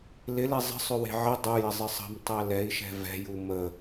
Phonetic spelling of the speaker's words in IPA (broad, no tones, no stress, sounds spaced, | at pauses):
l ɪ l e zˤ ə̤ sˤ ʏ w e̤ ʕ ɪ dˤ u j ɪ zˤ ɪ sˤ ə̤ m tˤ ɛ l ɛ i̯ ʃ ɛ̤ v ɛ̤ j u m ə